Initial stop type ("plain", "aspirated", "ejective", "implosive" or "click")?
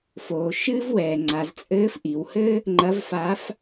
click